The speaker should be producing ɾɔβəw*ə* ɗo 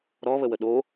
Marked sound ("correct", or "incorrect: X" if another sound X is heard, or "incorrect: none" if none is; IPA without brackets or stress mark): correct